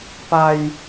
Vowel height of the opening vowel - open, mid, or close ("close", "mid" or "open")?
open